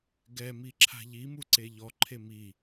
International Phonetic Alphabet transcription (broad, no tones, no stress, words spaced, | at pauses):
ɡɛmiǁʰa̤ ʎimuǀe ʎɔǃʰe mi